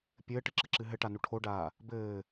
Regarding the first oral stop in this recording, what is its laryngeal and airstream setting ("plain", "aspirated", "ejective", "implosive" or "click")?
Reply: plain